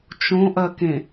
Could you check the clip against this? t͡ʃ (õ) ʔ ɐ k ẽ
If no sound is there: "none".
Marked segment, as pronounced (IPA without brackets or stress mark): õ